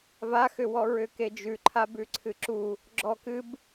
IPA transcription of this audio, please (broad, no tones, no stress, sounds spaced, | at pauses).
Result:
v a x ʏ w ɔ ɹ ʏ k e d͡ʒ ʉ ǃʰ a b ʉ ǀʰ ɨ ǁ u | ɡ͡ǁ ɔ k ɨ b